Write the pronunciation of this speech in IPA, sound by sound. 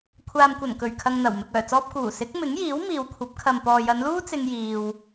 kʷʰ aː˨ m kʷ ɐ˨˩ n k ɵ˨˩ ɥ kʰ ɐ˨ ŋ n̪ ɐ˨˩ w m ɪ˨ k̚ œː˨˩ t͡s ɔː˧ p̚ k uː˨˩ s ɪ˨˥ k̚ m ɪ˨˥ ŋ j iː˨˥ w m iː˨ w kʷʰ ɐ˨˥ p̚ kʰ ɐ˨ m p ɔː˨ j ɐ˨˧ n l uː˥ t͡s ɪ˧ ŋ j iː˧ w

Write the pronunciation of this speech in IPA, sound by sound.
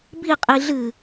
b i qʼ i ɮ ɨ

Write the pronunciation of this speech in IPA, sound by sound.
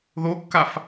ð o kː a f

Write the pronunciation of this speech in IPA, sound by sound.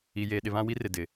i˨ j eː˨ ɗ ɪ˨ β ã˦ w i˦ r ɪ˨ d ɪ˨

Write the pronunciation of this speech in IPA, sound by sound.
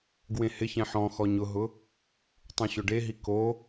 ɡ w ẽ h ɪ ç ɛ̃ ħ ɔ̃ x ɔ ɲ ʊ ɦ ʊ | tˤ ũ ɕ ʊ ɖ e ɦ i k o

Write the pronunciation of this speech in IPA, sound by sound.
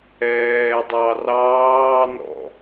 ɛː dˤ ɑ r ɑː n ɔ̰

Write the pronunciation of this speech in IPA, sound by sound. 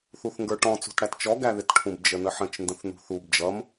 θ u θ ŋ ɡ ə˞ ʈ ɔ̃ t͡s ṳ t ɽ æ t t͡ʃ ɔ ɡ æ ð ɪ t ʈʰ ũ b d͡ʒ ə n ə ħ ə̃ t͡ʃ n d ə̃ θ n ṳ θ u b d͡ʒ ʌ m

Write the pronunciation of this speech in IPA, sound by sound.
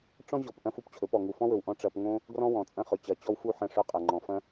ʈ͡ʂ ɔ̃˦ ʑ ɔ˨ p ʔ ɐ̃˦ f u˧ p t͡ɕʰ ɵ˨˦ p ɔ˨ ŋ u˨ f ɔ̃˦ w ɵ˨ w ʔ ɔ̃˦ ʈ͡ʂ ɐ˧ p ŋ õ˦ | ɡ r ɔ̃˦ w ɔ̃˨ t͡sʼ ɐ̃˦ χ ɵ˨ t͡ɕ ɐ˨ t͡ɕ ɔ˦ w f u˦˨ ħ ɐ̃˦˨ ʂ ɵ˦ qʼ ɐ˨ ŋ͡ǃ ɔ̃˨ f ɐ̃˦

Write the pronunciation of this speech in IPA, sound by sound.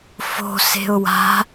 f o̤ s e̤ ʊ̯ w a̤

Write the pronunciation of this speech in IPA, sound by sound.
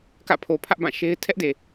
k ä̰˦˨ pʰ o˨ pʰ ä˦ ʔ b ã˦˨ ʃ e˦ ɪ̯ tʰ ɛ˦ ʔ d e˨

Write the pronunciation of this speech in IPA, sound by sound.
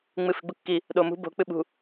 ŋ͡m ɨ f i̤ ɡ͡b u kː i | ɗ o m ṳ b o̤ k͡p ɨ ɓ ṳ

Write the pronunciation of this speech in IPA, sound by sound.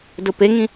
d ʊ p e ŋ ĩ

